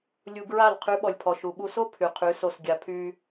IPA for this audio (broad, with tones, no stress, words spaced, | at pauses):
lʲu˧ɡɹa˦˨l qʰy˨˦ɓɔ˨lʲpʰɔ˨ ʃu˨ɓu˧so˦ pʰy˨qʰy˨˦so˧sɡʲa˧ pʰy˦